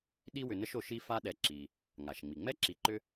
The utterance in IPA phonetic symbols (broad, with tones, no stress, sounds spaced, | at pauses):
ɗ i˦ w ʏ˨ n ə˦ ʃ o˨ ʃ i˦ f a˦ ɗ ɛ˨ ǁ i˩ | ŋ a˩ ʃ ŋ͡m i˩ ŋ͡m ɛ˥ ǁ i˨ ǃ ʏ˦